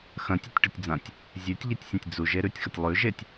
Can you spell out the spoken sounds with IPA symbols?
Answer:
x ɐ̃ tʲ e tʲ ʈ ɵ tʲ d͡z ã tʲ | zʲ ʉ tʲ ʎ e tʲ sʲ ɐ̃ tʲ d͡z u ʒ e ɾ ʉ tʲ x ɐ tʲ lˠ ʉ ʒ e tʲ

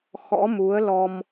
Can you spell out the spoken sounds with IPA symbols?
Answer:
x ɔ̰˧˥ m u˨˦ ə̯ l ɔ˧ m

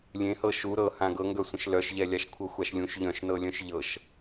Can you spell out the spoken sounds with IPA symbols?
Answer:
lʲ ẽ h ɤ ʃ u ɾ ɤ h ã ɡ ɤ ŋ ɡ œ sʷ ə̃ ʃ l œ ʃ ʎ ɛ lʲ a ʃ kʷʰ ɤ xʷ a ʃ lʲ ũ ʃ ʎ œ̃ ʃ n ɤ lʲ œ̃ ʃ ʎ ɤ ʃ

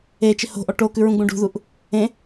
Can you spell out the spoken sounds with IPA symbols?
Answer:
e t͡ʃ ɪ h o̤ ʔ ɔ ʈ o k ʉ ɹ ũ ɡ͡b ũ ɖ ṳ ð u ʔ | ẽ

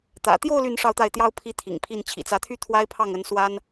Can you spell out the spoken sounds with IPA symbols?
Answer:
t̪ ä̰˨˩ t̪ j o˥˧ ʊ̯ l y˥˧ n ʂ ɑ˥˧ ʊ̯ t̪ a˥˩ ɪ̯ t̪ j ɑ˥ ʊ̯ pʰ i˥ t̪ʰ ḭ˨˩ ŋ pʰ i˥˩ n t͡ɕʰ ḭ˨˩ t͡s ä˧˥ t̪ʰ y˥ t̪ʰ w a˥ ɪ̯ pʰ ɑ˥˩ ŋ ə˧˥ n s w a˥ n

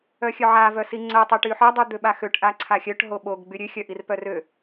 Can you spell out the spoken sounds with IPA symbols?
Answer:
œ xʲ œ ʕ a v œ s i ŋ͡ǀ œ tˤ ø ʈ y ħ œ dˤ y d̪ ø ɓ a x ø ʈ ʔ a ǀʰ a xʲ œ ʈ ɦ o ɓ o ɡ ɡ͡b y ɾʲ ø xʲ œ ʔ i r p œ r ø

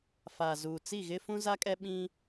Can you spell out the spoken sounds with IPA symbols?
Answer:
f a˨ z uː˨ t͡s i˦˨ ɣ ɪ˦ f ũ˦ z a˦ kʼ ɛ˦ ɓ ĩ˦

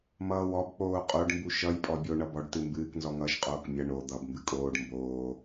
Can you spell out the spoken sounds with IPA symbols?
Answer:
m ʌː w ɔ b k͡p oː qʼ o ɖ m b u ʃ ʌ j pʼ ɔ bʲ o ɳ ʌ b ɔ ɖ t ɨ m b ɨː k n z ɔ ŋ ʌː ʃ qʼ oː k mʲ ʌ ɳ o d̪ ʌ b m b ɨ kʼ oː ɖ m b oː

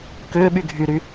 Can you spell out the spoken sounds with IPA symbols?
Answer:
k ʏː ɓ y ɡʱ y ɾ y

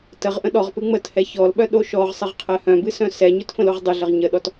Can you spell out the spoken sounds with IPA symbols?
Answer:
t ə ʁ ʔ ə̃ ɗ ɔ ʁ p ɨ ŋ͡m ə t h ɛ ç ɔ l ɓ œ ɗ o ʃ ɔ ʁ sˤ ɨ ʁ qʰ ɛ h œ̃ b ɨ s œ̃ s ɛ ɲ ɵ t f ə̃ l o ʁ dˤ ɨ ɮ ə ʁ ɲ ə ɗ ɔ t

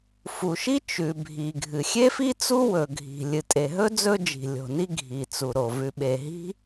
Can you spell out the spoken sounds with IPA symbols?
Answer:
f u˩ ʃ i˥ t͡ʃ ʉ˩ bʱ i˩ ɡʱ ɨ˩ xʲ e˥ f i˥ t͡s u˥ w ɵ˩ ɡʱ i̤˩ lʲ ɨ˩ tʼ e˩ ɦ ɵ˥ d͡z ɵ˥ d͡ʒ i̤˩ lʲ o̤˩ n i˥ ɡʱ i˩ t͡s u˩ ɾ o˩ v ʉ˩ ɓ e˩ ɦ i̤˥

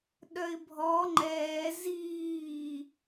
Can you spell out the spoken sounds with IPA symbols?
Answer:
ɗ œ ɪ̯ bʱ ɔ ŋ͡ǃ ɛː z iː

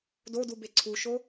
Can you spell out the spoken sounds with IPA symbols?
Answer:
d o d u b e ǀʰ u ʃ o

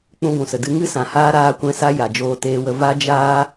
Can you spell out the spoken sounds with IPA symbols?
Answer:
k͡p ũ˧ ɡʷ ũ˨ s ə˨ d ɨ˧ ŋ ɨ˦ s ã˨ h aː˦ ɾ aː˦ kʷ ɛ̃˦ s a˦ j a˨ d͡ʒ oː˧ t eː˧ w ə˧ v a˦ d͡ʒ aː˦

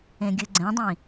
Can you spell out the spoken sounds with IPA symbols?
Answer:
ẽ ɡʲ ɯ ɡ͡ǀ ɛ̃ dˤ ĩ

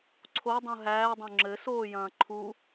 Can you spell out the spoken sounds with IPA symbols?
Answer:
ǀʰ o dˤ ũ ɦ æː dˤ õ ŋ͡ǁ ɘ s oː j ɐ̃ː ǃʰ u

